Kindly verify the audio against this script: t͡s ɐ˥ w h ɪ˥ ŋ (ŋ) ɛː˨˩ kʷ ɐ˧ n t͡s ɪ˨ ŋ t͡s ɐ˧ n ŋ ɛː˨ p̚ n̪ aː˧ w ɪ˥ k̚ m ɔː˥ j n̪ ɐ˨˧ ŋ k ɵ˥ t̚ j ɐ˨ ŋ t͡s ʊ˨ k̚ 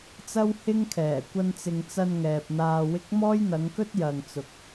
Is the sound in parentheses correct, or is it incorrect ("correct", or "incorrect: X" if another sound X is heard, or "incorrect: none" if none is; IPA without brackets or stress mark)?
incorrect: kʰ